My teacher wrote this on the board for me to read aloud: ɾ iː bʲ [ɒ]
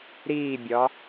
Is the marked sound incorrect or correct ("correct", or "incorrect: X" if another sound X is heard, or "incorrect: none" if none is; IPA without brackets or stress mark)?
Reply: correct